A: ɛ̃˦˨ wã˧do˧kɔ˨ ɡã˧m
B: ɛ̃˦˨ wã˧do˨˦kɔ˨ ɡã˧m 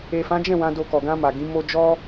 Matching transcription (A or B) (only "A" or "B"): A